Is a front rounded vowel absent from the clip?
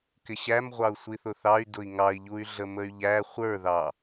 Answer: no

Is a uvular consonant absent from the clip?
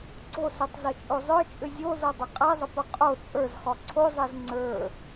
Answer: no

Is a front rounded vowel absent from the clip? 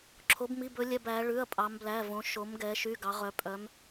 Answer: no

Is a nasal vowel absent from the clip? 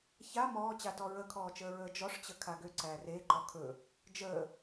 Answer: yes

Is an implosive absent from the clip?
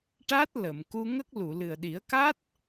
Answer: no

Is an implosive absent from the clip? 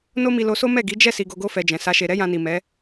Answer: yes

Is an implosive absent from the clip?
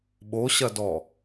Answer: no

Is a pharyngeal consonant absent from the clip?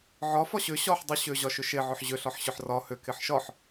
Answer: no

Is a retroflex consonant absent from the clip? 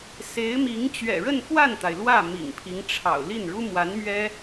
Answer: no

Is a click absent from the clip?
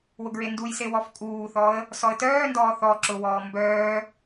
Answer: no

